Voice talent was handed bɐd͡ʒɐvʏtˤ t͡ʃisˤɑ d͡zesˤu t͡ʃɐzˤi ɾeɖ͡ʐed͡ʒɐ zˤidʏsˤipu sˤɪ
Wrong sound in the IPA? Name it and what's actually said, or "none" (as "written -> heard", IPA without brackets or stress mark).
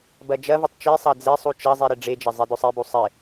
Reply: p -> b